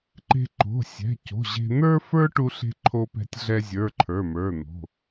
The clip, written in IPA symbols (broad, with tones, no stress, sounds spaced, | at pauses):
ǃ e̤˧ ǃ o̤˩˧˩ sʲ ɛ̤˩˧˩ c o̤˩˧˩ ʑ e̤˧ n̪ ə˞˧ f ə˞˧ ʈ u˧ ɬ e̤˧ ǃʰ o˧ p ɛ̤˧ tʲ ɮ ɛ˧ zʲ ə˞˩˧˩ ǃʰ ə˞˩˧˩ m ə˞˩˧˩ n̪ o̤˩˧˩